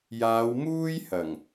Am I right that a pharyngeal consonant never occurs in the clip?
yes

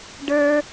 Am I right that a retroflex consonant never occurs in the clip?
no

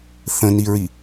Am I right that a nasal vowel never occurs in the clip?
no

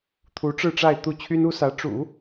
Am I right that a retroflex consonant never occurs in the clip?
no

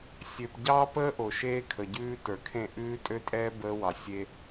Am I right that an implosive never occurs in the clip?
yes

